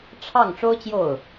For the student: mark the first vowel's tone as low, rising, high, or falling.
falling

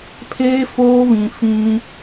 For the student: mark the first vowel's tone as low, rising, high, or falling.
high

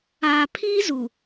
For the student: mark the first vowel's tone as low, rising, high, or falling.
low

